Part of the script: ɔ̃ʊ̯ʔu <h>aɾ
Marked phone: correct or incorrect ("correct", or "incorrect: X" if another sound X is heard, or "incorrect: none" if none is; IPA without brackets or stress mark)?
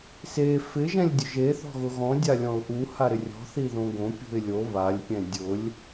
correct